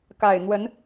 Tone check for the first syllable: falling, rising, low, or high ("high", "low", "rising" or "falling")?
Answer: low